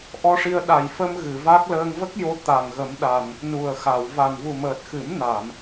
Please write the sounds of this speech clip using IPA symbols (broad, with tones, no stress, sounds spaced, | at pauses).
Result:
ʔ ɔ˧ ʂ i˧ ə̯ ɗ a˨˩ j f ə˧ m ɣ ɨ˨˩˨ v a˦˥ k̚ l əː˧ ŋ v ə˦˥ k̚ j o˧ t̪ a˨˩ ŋ ɣ ə˨˩˦ m ɗ a˨˩ n | n u˨˩ ə̯ x a˨˩˨ w v a˨˩ n v u˨˩ m əː˨˩ t̚ x ɨ˨˩˦ m n a˨˩˨ m